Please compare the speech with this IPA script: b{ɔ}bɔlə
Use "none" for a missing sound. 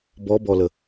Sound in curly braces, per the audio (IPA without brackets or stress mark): ɔ